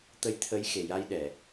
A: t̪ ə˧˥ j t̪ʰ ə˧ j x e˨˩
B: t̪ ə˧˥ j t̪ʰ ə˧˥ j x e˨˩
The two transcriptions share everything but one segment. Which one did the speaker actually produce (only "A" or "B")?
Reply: B